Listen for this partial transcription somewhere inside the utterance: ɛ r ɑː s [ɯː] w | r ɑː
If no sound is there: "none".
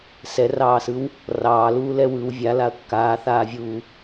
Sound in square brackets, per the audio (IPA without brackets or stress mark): ɯ